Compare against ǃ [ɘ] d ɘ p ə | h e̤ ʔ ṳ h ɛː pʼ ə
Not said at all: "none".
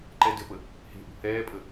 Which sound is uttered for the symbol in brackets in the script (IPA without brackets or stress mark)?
ɛ